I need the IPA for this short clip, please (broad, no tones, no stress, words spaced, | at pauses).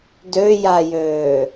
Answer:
døjajøː